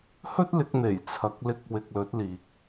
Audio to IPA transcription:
h ɵ˥ t̚ l ɪ˨˥ k̚ n̪ e˨˩ j t͡sʰ ɐ˨˥ k̚ l ɪ˧ k̚ w ɪ˧ k̚ l ɵ˨˥ t̚ l iː˨ k̚

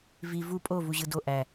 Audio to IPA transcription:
v i v u pʼ o v u ʑ ɯ d o ʔ æ

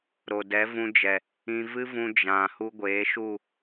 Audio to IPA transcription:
ɾ o˨ d ɛ˨˦ v ũ˧ d͡ʒ ɛ˨ | ĩ˧ v ɨ˦ v ũ˧ d͡ʒ ã˨ h u˧ ɡʷ eː˨˦ ʃ u˦˨

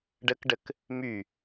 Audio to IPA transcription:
ɖ ə k ɖ ə k | m y

